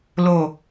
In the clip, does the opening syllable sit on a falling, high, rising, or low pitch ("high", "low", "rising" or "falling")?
low